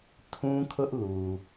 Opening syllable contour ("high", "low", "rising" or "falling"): high